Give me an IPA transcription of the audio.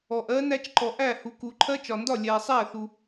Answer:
ɔ˨ ʔ ɜ˦˥ n æ˦˥ t͡ʃ ǃ ɔ˨ ʔ æ˥˩ h u˨ k u˨ ǃʰ ɜ˦˥ t͡ʃ ɒ˨ n d ɒ˥˩ lʲ æ˨ sˤ æ˥˩ θ u˨

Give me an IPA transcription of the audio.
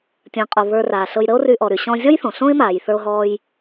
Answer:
tʲ ə̃ː˩ qʼ o˩ β ə˞˧ r aː˩ ɬ ɤ˧ j ɾ ə˥ o̯ r y˧ ʔ ɔ˩ ɾ y˩ ɕ ɔ̃˧ zʲ ɔ˥ j θ õ˩ ɬ õ˥ e̯ m aː˩ j θ ə˞˧ o̯ ɦ ɔː˧ j

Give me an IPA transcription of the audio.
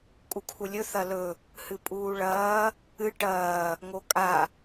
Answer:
kʼ u kʰ u lʲ ɵ θ ɐ l ɵ | h ɨ pʼ uː ɭ ɐː | ɨ ʈ ɐː | ŋ o kʼ a

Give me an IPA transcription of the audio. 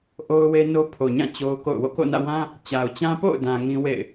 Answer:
ʔ o˦ ʊ̯ w e˦ n o˦ pʰ o˨ ɲ ã˦˨ t͡ɕ o˦ ʊ̯ k o̰˦˨ ʊ̯ w o̰˦˨ k o̰˦˨ n ä̰˦˨ w ã˦ | t͡ɕ a˨ ʊ̯ t͡ɕ ã˦ p o̰˦˨ ʊ̯ d ã˨ ŋ ĩ˦ w ḛ˦˨ ɪ̯

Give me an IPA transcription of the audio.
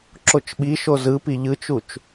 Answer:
ǁ o t͡ʃ ɓ i ʃ o z ɯ p i ʎ ɯ t͡ʃ u t͡ʃ

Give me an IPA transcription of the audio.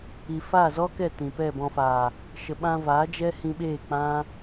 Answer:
i˨ f a˦˨ z ɔ˦ k ɛ˦˨ t ĩ˨ p ɛ˦˨ b ɔ̃˧ f aː˨ | ʃ ə˨ ɓ ã˧ v aː˨˦ d͡ʒ ɛ˦ h ĩ˧ ɓ eː˦˨ k͡p ã˦

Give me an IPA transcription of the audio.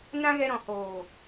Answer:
n ã˦ ɣ ɛ˧ ɾ ɔ̃˨ h oː˨

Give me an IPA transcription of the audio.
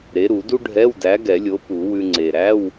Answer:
ɾ e˨˥ ɾ u˨˩˦ d u˥ ɖʱ ɛ˧˥˧ w d æ˨˥ ɡ ɛ˨˩˦ lʲ o˨˥ p u˨˩˦ w ʉ˧ ŋ͡ǀ e˨˩ ɾ æ˧˥˧ w

